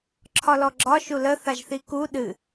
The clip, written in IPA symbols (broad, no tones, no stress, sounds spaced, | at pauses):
ǁʰ ɒ l ɔ ɡ͡ǁ ɒ ʃ u l ə θ a ʒ θ i k u ɗ ɨ